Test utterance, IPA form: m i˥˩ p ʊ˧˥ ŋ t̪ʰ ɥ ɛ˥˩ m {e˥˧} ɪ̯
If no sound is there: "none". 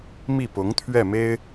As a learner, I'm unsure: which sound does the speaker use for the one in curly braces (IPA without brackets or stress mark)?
e˥